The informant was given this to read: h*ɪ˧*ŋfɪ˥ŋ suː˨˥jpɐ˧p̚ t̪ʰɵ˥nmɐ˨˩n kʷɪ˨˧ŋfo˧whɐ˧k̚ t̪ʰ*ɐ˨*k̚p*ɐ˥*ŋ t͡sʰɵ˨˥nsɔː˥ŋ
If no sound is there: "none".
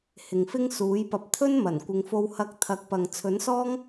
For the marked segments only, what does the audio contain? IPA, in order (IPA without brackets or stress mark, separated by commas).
ɪ˨, ɐ˨˥, ɐ˨